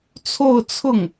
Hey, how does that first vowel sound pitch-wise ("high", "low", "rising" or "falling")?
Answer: falling